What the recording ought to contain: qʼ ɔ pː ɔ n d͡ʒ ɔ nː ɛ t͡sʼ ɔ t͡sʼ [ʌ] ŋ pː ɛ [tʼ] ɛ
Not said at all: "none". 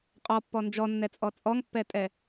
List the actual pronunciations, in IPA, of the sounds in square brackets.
ɔ, tʼ

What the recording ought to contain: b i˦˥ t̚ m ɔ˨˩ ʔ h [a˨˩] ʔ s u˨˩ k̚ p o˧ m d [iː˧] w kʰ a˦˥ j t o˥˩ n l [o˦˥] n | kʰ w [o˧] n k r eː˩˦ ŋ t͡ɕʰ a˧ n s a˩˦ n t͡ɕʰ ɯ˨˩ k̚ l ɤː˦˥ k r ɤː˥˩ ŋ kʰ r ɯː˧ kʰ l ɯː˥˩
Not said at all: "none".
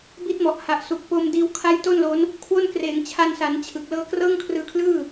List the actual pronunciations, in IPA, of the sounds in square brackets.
a˨˩, iː˧, o˦˥, o˥˩

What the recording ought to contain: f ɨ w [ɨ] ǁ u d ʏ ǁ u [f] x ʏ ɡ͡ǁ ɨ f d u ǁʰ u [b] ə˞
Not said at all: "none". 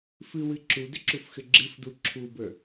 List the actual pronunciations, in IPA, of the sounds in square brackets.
ɨ, f, b

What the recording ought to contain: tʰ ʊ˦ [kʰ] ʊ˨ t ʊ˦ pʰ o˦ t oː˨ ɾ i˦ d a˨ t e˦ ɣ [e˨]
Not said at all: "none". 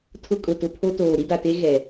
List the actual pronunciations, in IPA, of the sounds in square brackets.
kʼ, ɛ˨

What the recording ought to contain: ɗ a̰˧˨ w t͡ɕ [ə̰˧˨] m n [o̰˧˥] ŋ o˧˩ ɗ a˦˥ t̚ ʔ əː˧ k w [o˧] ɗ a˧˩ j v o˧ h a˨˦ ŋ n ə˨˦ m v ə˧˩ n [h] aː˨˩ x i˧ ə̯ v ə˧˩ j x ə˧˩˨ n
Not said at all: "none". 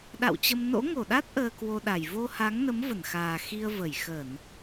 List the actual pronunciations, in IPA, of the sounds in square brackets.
ə˧, o̰˧˥, o˧, x

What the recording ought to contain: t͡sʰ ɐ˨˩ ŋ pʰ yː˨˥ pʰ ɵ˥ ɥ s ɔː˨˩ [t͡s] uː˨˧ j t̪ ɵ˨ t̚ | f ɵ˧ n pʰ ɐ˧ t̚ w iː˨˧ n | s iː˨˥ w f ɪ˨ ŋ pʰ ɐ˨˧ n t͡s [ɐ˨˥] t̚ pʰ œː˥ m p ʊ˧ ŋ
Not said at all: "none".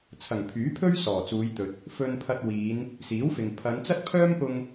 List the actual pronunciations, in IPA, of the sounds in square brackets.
t͡s, ɐ˥

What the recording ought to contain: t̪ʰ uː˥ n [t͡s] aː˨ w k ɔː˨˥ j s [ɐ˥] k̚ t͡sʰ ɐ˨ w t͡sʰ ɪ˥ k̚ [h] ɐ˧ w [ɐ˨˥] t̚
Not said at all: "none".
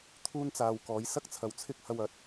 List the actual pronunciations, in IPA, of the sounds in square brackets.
t͡s, ɐ˥, h, ɐ˨˥

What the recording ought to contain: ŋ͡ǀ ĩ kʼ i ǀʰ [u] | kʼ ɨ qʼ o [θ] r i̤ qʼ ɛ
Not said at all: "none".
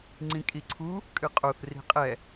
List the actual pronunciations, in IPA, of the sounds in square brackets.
u, θ

